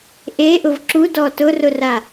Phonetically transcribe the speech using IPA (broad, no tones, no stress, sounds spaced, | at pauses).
ʔ e ʔ ʊ v ǁ u d ɔ t ʊ r ʊ r a